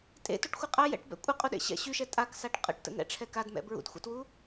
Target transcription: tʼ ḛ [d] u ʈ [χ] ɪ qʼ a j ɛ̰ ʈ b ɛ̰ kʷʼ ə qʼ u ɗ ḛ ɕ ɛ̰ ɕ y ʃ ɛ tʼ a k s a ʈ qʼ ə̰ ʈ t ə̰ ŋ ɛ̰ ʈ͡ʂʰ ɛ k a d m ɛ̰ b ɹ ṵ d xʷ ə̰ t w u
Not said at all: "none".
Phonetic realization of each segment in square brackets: t, xʷ

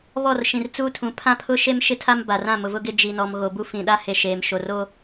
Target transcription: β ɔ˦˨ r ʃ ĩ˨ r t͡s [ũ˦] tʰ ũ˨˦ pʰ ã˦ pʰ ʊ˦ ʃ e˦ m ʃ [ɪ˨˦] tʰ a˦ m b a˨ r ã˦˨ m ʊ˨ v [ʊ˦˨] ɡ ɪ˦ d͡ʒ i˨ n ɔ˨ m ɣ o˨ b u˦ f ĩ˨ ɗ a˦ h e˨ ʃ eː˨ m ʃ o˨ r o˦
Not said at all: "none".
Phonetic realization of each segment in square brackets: u˦, ɪ˦, ʊ˦

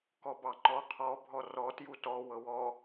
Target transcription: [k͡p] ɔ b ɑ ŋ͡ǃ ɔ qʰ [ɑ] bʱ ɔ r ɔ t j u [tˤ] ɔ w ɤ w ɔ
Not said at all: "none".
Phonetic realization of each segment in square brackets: k, ɔ, t

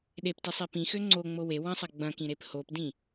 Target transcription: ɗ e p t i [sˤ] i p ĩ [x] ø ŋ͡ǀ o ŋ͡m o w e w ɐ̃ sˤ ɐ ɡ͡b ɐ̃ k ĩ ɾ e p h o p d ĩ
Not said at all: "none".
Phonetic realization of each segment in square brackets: sˤ, x

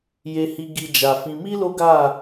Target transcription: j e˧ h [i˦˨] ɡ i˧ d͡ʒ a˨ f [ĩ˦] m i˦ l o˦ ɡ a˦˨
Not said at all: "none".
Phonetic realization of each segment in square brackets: i˧, ĩ˧

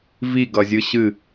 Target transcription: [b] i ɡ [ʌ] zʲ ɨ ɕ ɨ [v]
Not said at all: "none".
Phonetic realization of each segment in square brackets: v, ʌ, none

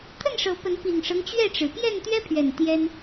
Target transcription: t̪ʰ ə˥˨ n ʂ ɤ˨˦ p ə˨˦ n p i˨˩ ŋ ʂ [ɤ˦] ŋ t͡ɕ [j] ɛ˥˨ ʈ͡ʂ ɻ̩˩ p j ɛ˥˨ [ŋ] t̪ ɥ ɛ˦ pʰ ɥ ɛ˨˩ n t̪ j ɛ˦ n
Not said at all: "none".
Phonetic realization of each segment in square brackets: ɤ˦, ɥ, n

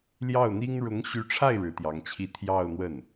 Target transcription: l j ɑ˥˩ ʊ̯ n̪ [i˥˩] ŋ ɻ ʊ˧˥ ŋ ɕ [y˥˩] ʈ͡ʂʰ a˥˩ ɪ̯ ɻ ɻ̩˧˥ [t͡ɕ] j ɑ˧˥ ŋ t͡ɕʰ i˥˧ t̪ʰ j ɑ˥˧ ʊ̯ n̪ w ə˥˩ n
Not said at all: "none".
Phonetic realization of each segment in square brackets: i˥, y˧˥, t̪

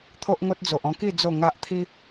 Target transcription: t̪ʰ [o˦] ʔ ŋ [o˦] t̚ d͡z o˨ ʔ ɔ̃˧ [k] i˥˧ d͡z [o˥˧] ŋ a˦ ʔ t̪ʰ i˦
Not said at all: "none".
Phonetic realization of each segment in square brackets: o˦, o˦, k, o˥˧

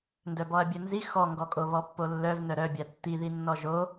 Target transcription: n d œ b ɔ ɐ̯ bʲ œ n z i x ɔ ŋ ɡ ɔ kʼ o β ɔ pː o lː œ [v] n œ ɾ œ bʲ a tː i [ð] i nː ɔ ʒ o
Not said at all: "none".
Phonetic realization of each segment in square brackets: v, ð

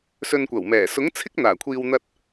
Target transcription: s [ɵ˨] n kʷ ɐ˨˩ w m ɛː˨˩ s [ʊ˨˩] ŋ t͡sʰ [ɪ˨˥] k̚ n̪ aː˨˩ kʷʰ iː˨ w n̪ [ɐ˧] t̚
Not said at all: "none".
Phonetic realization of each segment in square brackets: ɵ˨, ʊ˨˥, ɪ˥, ɐ˧

